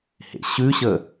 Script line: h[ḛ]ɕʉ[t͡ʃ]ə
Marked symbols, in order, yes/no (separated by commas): yes, no